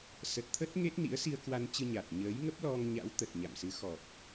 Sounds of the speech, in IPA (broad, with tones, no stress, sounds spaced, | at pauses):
s ə˨˩ t̚ t̪ʰ ə˦˥ t̚ ŋ e˦˥ t̚ n ḭ˧˥ ə̯ s i˧ ə̯ k w a˧ n t͡ɕ ɨ˧ ɲ a˨˩ t̚ ɲ əː˨˦ j ŋ ə˦˥ p̚ l ɔ˧ ŋ ɲ a̰˧˥ w t̪ ə˨˩ t̚ ɲ a̰˧˨ m s ɨ˨˦ x ɔ˨˩ k̚